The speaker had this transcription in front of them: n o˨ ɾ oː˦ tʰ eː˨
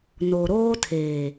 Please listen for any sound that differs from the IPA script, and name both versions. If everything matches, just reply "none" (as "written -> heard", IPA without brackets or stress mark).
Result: none